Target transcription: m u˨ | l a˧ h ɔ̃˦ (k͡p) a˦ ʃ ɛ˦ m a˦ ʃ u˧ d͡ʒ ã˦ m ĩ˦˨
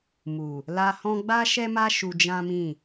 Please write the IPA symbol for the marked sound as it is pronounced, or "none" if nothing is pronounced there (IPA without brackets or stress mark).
ɡ͡b